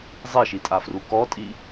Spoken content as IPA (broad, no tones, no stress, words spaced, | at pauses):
zˤiʃitʼafru kɔtʼi